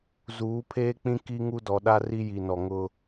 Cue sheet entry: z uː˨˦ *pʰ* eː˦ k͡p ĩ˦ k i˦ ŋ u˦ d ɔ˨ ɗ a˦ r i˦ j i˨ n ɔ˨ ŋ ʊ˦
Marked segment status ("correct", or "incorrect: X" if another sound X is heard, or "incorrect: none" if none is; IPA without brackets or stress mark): correct